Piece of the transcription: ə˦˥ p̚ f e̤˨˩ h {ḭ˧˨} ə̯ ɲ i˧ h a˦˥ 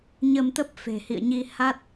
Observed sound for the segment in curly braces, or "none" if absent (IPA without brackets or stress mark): ḭ˧˨